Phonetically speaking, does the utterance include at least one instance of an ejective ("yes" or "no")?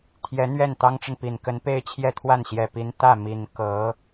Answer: no